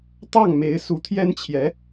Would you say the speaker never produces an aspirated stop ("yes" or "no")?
no